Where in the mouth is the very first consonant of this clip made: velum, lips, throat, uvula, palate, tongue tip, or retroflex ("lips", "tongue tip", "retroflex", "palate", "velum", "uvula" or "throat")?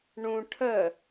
retroflex